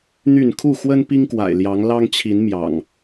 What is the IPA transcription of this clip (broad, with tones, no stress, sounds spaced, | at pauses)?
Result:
n̪ y˥˨ n kʰ u˥˨ x w ə˦ n p i˦ ŋ k w a̰˨˩ ɪ̯ l j ɑ˨˦ ŋ l ɑ˦ ŋ t͡ɕʰ i˨˦ n m j ɑ̰˨˩ ŋ